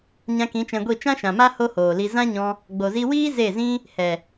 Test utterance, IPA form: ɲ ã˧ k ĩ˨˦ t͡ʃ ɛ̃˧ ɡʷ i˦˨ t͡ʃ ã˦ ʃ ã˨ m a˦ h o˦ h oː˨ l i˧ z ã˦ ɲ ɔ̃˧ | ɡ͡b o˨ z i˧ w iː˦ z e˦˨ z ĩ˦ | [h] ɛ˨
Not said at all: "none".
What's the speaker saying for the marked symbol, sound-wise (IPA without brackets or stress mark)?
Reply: h